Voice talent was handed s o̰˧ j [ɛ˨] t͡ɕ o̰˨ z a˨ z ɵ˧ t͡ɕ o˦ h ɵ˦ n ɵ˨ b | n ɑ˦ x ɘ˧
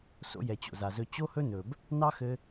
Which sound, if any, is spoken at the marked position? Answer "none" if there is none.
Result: ɛ˨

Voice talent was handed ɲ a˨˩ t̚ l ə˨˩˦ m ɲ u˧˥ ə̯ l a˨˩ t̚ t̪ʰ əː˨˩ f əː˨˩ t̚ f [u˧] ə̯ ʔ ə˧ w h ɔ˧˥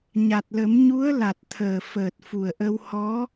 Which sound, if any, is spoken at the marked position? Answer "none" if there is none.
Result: u˨˩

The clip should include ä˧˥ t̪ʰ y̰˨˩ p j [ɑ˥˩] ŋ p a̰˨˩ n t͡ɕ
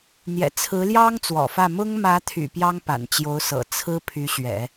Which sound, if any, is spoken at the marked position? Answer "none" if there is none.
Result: ɑ˥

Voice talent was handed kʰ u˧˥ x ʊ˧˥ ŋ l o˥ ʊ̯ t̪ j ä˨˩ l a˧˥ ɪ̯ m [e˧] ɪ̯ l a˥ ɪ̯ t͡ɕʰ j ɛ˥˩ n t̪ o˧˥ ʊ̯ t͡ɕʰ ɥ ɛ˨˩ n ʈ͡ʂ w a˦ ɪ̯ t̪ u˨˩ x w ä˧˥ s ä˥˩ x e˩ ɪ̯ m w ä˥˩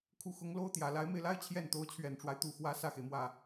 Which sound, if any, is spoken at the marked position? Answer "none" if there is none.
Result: e˧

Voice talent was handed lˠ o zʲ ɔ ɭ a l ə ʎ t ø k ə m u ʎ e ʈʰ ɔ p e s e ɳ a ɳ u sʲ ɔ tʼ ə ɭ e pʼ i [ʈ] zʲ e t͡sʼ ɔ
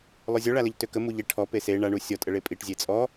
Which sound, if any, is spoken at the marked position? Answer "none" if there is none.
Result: ʈ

